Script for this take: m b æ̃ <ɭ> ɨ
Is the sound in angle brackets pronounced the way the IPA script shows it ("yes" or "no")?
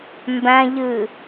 no